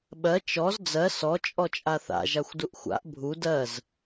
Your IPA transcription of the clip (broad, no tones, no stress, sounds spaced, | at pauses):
ɓ ɜ t͡ʃ ɔ z d͡z ɜ s ɔ t͡ʃʼ ɔ t͡ʃʼ a θ a̰ ʒ a xʷ d u ʔ xʷ a̰ ʔ bʱ u d ɜ z